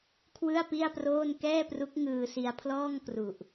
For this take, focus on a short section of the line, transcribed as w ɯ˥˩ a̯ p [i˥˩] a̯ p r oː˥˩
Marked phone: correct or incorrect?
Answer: correct